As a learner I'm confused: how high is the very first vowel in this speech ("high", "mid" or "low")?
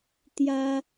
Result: low